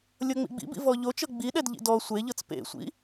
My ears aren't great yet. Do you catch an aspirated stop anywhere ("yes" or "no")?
no